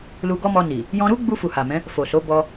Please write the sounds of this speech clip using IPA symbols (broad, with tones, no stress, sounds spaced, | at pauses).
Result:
l u˧ ɡ ɔ˦ m ɔ˧ n i˨ | j ɔ̃˧ ɾ u˦ ɡ͡b u˧ f u˨ h a˨ m ɛ̃˨˦ | f o˨ s o˨˦ b ɔ˧